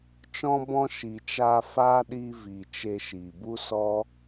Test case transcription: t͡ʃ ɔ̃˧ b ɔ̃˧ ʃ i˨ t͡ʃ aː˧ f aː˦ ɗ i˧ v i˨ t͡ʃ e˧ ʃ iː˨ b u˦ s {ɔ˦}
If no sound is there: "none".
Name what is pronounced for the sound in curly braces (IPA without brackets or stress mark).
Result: ɔ˦